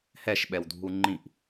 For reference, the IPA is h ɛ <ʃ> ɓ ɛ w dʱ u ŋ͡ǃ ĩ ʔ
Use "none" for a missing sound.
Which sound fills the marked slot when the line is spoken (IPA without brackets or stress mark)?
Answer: ʃ